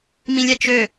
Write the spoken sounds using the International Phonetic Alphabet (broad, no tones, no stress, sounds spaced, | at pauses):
m ĩ lʲ ɛ t͡ʃ ø